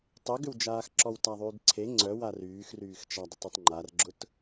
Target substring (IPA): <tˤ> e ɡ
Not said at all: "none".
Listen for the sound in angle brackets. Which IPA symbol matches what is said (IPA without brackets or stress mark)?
tˤ